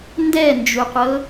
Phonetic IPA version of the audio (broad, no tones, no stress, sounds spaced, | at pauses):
n d ɛ n d͡ʒ u qʷ ɤ